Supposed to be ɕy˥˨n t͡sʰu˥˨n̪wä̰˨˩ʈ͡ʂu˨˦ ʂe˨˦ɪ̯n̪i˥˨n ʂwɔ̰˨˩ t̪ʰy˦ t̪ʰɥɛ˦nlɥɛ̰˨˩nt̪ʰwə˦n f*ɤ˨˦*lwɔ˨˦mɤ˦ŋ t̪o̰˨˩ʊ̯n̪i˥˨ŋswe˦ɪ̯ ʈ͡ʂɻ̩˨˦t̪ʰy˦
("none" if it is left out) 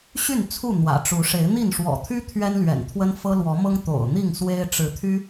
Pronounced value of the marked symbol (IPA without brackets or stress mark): ɤ˦